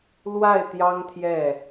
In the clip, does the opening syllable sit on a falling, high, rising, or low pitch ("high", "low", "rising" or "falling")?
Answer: falling